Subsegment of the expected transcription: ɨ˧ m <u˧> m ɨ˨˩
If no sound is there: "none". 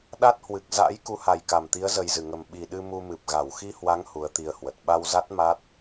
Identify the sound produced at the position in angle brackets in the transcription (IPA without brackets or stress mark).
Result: u˧